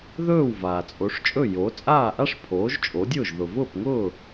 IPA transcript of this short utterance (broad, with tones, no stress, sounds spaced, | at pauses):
ð ɵː˥˩ w v aː˩ t͡sʼ o˩˥ ʂ t͡ʃʼ ɵ˥˩ j o˩˥ t͡sʼ aː˥˩ ʔ a˥ ʂ pʰ oː˩˥ ʒ t͡ʃʼ o˩˥ dʲ ʊː˥˩ ʒ ð ʊ˩ v ʊː˥˩ p ŋ ʊː˥˩